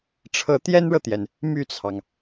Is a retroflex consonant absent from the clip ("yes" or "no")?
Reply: no